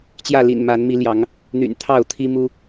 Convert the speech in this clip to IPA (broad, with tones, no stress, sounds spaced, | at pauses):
t͡ɕ j ä˥˨ l ḭ˨˩ n m a˨˦ n m i˨˦ l j ɑ˨˦ ŋ | n̪ y̰˨˩ n t̪ʰ ɑ˥˨ ʊ̯ t̪ʰ i˦ m u˦